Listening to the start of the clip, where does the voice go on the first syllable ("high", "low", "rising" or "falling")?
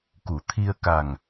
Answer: low